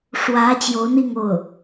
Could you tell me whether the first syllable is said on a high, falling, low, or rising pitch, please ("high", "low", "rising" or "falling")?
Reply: rising